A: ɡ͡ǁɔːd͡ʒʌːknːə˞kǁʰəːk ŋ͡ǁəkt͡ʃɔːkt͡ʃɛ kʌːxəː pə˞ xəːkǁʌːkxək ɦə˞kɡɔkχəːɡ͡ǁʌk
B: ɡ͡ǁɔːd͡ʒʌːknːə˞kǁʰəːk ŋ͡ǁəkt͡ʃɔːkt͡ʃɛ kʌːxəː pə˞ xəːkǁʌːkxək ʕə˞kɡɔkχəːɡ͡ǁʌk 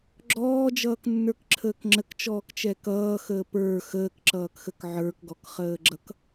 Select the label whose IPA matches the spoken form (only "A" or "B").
B